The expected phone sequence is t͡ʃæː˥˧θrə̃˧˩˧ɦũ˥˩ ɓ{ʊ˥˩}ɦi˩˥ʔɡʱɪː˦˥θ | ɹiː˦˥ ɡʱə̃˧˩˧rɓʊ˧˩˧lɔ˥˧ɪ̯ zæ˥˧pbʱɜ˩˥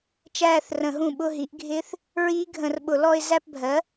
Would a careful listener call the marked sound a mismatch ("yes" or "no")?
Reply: yes